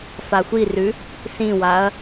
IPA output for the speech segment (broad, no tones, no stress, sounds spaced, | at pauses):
f a xʷ i r ʉ | s ĩ w a ɐ̯